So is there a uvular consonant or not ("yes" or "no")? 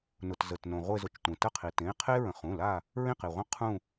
yes